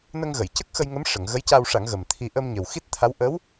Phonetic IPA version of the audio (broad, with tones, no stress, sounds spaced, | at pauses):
n ə˧ ŋ ɣ ə˨˩˨ j c ə˦˥ k̚ x ə˧ j ŋ ə˧˥ m ʂ ə˨˩˦ ŋ ɣ ə˧˥ j c a˧ w ʂ a˨˩˦ ŋ ɣ ə˨˩ m t̪ʰ i˧ ʔ ə˧ m ɲ ə˨˩ w x i˦˥ t̚ t̪ʰ a˧˥ w ʔ ə˧˥ w